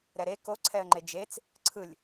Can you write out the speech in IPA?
ɾ ɛ ɾ e k o ǀʰ ɛ ə̯ ŋ͡ǃ e d͡ʒ e t͡s | ǀʰ ɯ lʲ

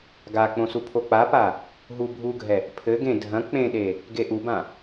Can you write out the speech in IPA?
ɡ a k͡p õ s u pʰ o k͡p a p a | ɦ u bʱ u ɡʱ ɛ | pʰ ɘ ɡ ẽ dʱ ɐ̃ k͡p ẽ ɗ e | ɡ e ʔ u b ã

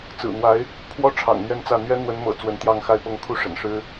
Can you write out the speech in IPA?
t͡s ɹ̩˨˩ n̪ w a˧˥ ɪ̯ | pʰ w ɔ˥ ʈ͡ʂʰ ɑ̰˨˩ ŋ n̪ ɥ ɛ˥˧ n t͡s ä˥˩ n̪ ɥ ɛ˥ n̪ w ə˧˥ n m ɤ̰˨˩ t͡s w ə˧˥ n t̪ j ɑ˥˧ ŋ x a˥˧ ɪ̯ p ɤ˥˧ ŋ kʰ u˥˩ ʂ ə̰˨˩ n ʂ ɻ̩˥

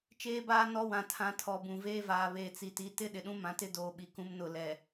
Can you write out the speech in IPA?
t͡ʃ eː˨ b aː˨ n ɔ˦ w ã˨ tʰ ã˨ tʰ ɔ˨ b ũ˨ v eː˦ v aː˨ β eː˨ t͡s i˨ t i˨ t ɪ˦ ɗ ɪ˨ ɗ ũ˦ m ã˨ t ɪ˦ d oː˨ ɓ i˨ k ũ˦ m n ʊ˦˨ l ɛ˨

